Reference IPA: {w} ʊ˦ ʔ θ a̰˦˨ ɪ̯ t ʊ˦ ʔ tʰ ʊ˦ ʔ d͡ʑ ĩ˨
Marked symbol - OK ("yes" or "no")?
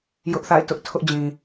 no